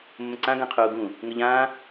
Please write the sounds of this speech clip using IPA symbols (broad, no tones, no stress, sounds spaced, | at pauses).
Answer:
mː ə̃ ǀ ã ɡ ã qʰ uː ɡ ũ | ŋ ə ʎ ãː